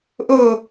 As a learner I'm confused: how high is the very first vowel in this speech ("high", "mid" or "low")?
mid